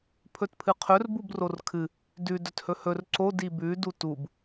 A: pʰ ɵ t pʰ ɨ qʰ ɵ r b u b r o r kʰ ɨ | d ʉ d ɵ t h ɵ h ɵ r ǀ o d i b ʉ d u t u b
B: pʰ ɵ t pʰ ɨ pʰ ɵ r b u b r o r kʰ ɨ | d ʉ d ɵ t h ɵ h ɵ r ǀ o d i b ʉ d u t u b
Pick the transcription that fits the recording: A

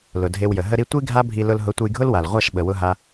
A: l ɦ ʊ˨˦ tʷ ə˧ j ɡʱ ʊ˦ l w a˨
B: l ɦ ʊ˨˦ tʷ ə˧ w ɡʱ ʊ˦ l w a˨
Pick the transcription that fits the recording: A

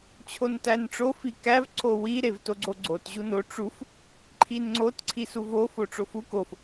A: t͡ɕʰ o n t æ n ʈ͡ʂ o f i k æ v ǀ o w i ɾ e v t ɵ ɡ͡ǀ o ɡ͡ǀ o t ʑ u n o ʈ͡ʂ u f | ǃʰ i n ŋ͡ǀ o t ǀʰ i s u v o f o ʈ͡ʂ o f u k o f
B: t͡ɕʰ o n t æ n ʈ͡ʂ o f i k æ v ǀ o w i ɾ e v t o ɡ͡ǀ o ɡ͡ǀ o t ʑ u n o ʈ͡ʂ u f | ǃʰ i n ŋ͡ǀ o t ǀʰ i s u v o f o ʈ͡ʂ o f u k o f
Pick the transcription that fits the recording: B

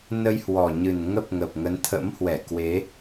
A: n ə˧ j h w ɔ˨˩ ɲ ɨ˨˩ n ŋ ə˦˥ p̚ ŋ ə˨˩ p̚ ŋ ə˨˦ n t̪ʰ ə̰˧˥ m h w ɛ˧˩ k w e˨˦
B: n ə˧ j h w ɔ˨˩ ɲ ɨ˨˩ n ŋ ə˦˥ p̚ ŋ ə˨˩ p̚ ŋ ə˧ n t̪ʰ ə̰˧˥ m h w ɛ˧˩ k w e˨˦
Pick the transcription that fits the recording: A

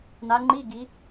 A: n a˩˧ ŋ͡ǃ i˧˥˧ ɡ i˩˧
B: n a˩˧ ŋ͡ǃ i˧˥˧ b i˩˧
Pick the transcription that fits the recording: A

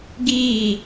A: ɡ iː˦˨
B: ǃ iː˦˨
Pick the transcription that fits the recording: A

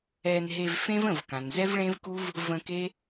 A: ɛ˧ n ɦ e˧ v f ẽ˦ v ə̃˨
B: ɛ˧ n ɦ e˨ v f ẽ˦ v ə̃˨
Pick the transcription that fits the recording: A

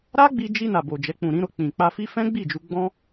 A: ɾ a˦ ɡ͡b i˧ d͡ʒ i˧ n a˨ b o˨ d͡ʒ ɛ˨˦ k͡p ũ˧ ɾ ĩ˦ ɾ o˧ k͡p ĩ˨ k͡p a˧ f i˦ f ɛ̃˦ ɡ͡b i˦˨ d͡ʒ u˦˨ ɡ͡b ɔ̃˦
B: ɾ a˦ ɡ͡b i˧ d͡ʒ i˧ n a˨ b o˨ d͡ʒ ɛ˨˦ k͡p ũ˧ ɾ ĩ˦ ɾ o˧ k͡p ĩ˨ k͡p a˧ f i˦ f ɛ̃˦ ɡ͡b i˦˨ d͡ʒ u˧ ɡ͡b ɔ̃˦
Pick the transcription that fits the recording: B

